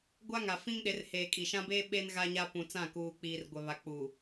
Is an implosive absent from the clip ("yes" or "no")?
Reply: no